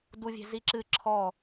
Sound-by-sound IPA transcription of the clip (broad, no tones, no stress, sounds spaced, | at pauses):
d u vʲ e̤ z i ǁ ɨ ǁʰ ɔ